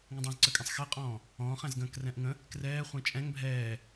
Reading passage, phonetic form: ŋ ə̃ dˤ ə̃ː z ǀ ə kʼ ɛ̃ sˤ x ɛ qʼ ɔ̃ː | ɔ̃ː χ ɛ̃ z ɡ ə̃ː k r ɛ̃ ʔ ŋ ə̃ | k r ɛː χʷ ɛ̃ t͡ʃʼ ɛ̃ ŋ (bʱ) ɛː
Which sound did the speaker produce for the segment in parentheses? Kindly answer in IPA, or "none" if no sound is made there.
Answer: bʱ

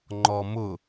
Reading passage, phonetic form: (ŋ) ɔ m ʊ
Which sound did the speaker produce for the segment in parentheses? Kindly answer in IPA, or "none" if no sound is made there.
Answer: ŋ͡ǃ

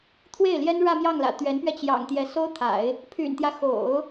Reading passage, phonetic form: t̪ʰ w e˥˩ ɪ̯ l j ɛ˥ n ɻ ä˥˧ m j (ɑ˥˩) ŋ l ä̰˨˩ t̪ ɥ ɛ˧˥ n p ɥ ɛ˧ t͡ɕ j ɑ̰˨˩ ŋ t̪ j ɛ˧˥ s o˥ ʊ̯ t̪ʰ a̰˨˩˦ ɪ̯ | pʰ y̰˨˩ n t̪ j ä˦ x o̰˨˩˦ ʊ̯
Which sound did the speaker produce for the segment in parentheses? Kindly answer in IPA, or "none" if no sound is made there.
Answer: ɑ˥˩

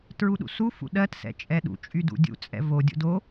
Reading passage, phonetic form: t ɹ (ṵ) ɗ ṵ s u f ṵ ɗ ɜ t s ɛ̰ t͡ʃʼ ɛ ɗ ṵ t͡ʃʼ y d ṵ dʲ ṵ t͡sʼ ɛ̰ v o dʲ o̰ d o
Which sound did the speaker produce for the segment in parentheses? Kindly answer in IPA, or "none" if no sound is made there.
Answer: u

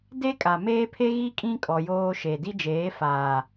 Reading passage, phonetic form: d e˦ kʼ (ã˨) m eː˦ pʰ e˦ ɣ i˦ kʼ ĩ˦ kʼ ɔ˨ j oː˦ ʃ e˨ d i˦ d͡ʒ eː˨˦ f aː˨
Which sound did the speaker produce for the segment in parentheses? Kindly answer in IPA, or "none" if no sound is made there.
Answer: a˨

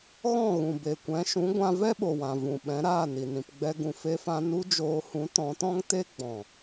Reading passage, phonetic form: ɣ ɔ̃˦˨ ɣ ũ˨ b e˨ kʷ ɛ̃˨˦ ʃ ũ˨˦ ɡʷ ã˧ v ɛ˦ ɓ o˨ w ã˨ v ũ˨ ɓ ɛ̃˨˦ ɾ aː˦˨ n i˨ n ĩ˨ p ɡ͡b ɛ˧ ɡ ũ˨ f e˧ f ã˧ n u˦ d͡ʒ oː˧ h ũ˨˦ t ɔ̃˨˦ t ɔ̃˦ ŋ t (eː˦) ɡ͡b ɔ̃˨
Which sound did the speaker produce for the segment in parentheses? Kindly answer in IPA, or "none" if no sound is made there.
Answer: e˦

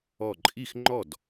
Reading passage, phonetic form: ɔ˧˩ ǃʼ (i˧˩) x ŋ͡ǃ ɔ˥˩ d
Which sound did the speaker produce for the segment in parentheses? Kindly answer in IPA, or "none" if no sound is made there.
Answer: i˥˩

